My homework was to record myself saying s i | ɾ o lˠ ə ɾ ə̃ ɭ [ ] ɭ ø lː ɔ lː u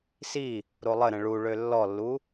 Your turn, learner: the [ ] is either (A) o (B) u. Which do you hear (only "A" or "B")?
B